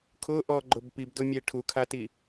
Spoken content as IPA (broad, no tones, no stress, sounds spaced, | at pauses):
kʰ ʊ ʔ ɔ ɡ͡ǃ ʊ b p i b d ʊ mʲ e ʈʰ u kʰ a t i